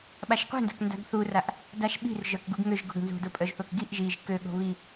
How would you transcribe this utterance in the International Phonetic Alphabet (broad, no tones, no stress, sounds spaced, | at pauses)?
ɓ a ʃ qʷ i̤ n d a̤ k n d a̤ ɡ θ u r a ʔ | d a ʃ ɓ i̤ r ʒ œ k ɡ u ɡ ŋ ø ʒ ɡ o̤ ɡ n z ṳ d o pʼ œ ʒ θ o k ɡ i ʔ ʒ i ʒ k ø ɠ o̤ β i